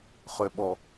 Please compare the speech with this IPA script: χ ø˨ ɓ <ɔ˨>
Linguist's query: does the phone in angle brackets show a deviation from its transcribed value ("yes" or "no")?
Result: no